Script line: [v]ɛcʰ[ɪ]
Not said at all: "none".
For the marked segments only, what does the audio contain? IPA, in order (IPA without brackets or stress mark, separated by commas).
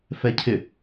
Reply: f, ɪ